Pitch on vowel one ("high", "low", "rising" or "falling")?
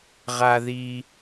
high